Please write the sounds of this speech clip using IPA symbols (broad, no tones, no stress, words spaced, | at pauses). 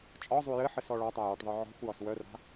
t͡ʃʼɒzˤu jɘħɘs ɔɭɒtˤaj ɔʈðˤɯ ʕɔ̤xʷjɒs wœra̤